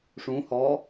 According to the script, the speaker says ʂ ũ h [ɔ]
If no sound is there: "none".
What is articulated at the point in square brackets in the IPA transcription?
ɔ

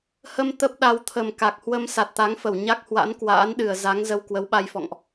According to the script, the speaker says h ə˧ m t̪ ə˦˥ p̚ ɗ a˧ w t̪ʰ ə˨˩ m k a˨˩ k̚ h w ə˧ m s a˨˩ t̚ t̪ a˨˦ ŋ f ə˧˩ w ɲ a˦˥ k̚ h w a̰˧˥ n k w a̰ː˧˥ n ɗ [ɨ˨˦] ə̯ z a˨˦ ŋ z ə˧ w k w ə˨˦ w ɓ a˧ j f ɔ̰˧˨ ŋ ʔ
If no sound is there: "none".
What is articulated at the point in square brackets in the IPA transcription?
ɨ˨˩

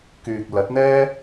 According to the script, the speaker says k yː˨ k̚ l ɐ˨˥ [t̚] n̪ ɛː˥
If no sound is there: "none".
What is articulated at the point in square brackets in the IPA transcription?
t̚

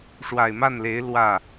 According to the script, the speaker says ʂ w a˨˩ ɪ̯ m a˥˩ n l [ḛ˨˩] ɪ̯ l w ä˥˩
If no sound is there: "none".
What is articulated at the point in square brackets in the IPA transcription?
e˧˥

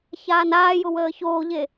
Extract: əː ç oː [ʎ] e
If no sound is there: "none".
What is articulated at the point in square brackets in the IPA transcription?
ʎ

